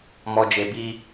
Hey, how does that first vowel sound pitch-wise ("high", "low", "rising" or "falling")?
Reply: low